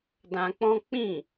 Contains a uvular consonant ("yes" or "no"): no